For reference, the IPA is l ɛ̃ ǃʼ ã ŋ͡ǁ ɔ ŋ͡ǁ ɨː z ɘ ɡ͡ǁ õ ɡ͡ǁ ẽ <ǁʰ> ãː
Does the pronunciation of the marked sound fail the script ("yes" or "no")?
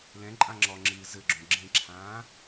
no